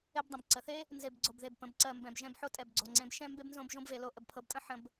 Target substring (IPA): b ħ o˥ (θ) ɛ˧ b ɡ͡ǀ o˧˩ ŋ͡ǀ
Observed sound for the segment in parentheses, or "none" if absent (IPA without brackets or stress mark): tʼ